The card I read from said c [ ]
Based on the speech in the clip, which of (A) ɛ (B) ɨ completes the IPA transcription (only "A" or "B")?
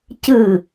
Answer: B